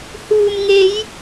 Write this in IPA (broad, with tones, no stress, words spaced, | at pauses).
huː˨mŋe˨˧j